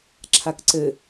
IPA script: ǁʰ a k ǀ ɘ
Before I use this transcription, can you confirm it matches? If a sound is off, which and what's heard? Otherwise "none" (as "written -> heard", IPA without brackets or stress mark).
none